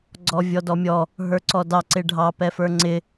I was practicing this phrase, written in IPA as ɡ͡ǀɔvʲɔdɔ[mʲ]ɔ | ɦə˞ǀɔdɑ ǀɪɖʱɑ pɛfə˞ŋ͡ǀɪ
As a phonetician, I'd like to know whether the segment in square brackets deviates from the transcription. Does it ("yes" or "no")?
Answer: no